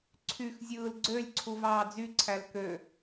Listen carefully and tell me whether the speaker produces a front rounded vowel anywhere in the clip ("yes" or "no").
yes